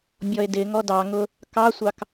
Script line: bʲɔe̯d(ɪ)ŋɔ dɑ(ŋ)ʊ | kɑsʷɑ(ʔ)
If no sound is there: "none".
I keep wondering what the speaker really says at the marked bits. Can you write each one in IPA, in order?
ɪ, ŋ, k

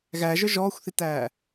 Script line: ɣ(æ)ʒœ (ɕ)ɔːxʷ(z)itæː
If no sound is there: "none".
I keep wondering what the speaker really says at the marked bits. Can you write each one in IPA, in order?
æ, ʒ, θ

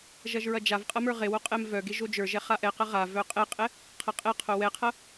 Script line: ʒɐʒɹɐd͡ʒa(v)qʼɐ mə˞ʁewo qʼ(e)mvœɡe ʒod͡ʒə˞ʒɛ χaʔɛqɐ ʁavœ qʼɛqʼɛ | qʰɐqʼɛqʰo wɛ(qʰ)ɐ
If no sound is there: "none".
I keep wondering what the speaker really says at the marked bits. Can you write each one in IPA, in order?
v, ɛ, qʰ

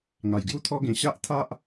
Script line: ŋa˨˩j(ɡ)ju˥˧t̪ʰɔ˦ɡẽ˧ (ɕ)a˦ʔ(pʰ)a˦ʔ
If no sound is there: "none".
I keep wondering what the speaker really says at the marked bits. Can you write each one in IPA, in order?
ɡ, ɕ, t̪ʰ

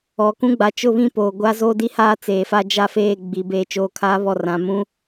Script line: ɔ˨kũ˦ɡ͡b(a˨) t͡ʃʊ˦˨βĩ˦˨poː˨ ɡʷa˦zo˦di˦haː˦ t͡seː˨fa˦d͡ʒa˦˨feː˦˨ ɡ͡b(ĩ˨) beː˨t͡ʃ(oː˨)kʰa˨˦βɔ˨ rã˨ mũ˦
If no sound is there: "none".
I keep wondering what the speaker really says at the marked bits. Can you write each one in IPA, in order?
a˨, i˨, oː˨

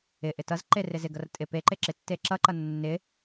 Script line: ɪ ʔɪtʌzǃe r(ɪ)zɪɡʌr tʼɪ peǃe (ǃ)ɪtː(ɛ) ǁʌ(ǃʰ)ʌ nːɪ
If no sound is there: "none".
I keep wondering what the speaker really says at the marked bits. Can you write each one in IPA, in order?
ɪ, ǁ, e, ǃ

